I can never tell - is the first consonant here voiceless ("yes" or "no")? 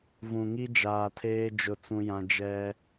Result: no